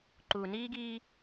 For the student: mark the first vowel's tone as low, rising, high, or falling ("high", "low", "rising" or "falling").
low